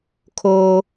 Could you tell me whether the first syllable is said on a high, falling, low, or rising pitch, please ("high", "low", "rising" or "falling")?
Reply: high